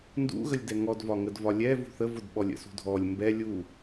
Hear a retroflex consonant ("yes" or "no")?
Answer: no